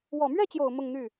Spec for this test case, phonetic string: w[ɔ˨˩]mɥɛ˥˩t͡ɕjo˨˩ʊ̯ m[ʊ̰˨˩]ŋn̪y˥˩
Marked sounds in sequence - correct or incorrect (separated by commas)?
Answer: correct, incorrect